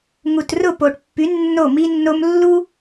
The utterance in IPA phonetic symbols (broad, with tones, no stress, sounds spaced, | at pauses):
ŋ u˨ t r ʊ˦˨ p o˨ ʈ pː y˨˦ nː o˦˨ m i˦ nː o˦ m lː u˦